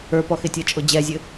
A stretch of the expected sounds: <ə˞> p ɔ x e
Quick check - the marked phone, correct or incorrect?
correct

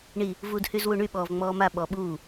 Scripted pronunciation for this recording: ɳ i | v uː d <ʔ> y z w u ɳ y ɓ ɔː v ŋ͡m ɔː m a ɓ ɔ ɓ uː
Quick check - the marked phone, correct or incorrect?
incorrect: h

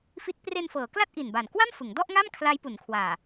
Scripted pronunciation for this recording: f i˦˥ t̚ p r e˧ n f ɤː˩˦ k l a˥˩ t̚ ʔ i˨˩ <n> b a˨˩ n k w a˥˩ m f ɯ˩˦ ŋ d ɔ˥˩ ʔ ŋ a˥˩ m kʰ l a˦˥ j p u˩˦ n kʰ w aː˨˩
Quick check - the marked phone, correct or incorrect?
correct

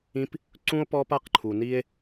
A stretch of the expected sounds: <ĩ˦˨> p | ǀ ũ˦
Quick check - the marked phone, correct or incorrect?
incorrect: ĩ˦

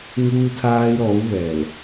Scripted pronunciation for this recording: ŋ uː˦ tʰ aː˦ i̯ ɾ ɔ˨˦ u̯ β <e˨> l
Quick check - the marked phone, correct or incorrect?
incorrect: ɛ˨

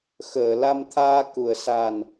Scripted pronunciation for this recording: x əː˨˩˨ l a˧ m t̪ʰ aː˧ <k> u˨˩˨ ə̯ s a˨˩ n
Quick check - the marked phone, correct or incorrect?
correct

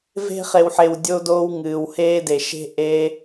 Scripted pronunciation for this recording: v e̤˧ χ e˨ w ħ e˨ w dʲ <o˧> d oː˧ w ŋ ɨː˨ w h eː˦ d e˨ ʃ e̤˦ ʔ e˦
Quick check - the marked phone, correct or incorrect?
correct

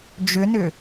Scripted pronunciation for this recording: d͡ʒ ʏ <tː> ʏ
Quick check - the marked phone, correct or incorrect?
incorrect: n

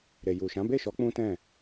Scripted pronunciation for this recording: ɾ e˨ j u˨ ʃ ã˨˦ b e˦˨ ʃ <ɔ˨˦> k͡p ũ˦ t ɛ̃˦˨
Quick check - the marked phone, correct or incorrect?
correct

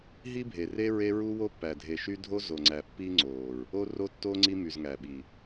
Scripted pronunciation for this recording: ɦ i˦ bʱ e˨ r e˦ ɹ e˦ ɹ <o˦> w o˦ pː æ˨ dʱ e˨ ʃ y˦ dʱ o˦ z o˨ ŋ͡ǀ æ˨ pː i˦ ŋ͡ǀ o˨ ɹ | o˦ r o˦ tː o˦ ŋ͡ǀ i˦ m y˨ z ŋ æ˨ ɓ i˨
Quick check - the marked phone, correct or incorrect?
incorrect: u˦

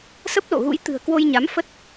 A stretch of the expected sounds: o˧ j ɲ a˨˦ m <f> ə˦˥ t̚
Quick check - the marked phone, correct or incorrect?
correct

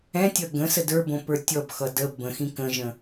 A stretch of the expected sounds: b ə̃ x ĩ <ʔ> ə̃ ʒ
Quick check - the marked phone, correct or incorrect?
incorrect: k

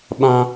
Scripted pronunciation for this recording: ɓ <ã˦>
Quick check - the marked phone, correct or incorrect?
correct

